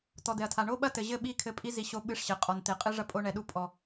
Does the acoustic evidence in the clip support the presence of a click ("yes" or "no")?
no